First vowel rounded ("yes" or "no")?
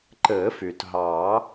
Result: no